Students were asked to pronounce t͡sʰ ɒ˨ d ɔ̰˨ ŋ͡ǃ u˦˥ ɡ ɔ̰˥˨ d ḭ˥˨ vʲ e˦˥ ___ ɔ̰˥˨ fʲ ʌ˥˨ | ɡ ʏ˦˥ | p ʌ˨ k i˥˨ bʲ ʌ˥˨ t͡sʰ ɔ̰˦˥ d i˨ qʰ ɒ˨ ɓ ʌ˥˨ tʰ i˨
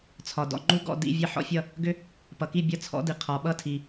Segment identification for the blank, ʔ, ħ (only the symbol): ħ